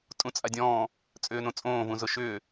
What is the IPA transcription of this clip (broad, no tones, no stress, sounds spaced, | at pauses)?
tʼ ũ t͡sʼ a dʲ ɔ̃ː | t͡sʼ ʏː n õ t͡sʼ õː v ũ z ʊ ʃ ʏː